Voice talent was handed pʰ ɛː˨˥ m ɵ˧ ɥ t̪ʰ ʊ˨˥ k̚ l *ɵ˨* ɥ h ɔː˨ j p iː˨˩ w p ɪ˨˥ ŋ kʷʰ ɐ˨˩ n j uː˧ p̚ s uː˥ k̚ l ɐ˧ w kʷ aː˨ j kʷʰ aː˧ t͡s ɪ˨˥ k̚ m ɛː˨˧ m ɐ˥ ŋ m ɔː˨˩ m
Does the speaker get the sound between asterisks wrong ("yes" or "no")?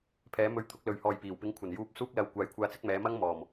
no